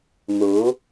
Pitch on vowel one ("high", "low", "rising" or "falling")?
rising